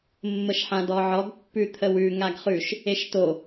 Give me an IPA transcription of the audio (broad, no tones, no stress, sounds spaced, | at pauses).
mː ə ʃ ħ ã d ɔ ʕ ɔ ɡ pː ʉ t̪ʰ ə w ʉ ŋ a ɡ χ ʉ ʃ | e ʃ t o